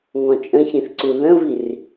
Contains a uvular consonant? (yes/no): no